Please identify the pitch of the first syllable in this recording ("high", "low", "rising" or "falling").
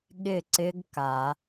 falling